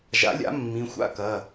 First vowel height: low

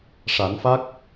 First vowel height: low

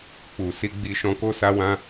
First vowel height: high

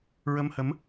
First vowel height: mid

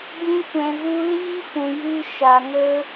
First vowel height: high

